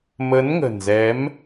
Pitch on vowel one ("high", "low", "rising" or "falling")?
rising